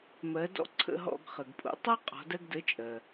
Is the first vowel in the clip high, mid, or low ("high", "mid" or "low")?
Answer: mid